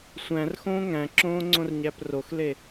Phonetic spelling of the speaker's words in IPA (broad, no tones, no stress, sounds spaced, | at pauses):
sʷ æ̃ r x õː ŋ æ̃ ǁ õː ŋ͡ǀ õ r ɲ æ p r o x l e